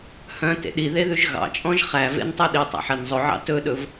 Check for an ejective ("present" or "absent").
present